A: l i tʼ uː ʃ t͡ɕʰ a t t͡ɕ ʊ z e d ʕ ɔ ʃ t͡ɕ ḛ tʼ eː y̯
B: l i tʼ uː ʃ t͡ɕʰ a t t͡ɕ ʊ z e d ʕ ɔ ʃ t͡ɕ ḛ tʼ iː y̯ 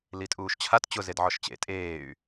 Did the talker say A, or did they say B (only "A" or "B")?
A